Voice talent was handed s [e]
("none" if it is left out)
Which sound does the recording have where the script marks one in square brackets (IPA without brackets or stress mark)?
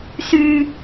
y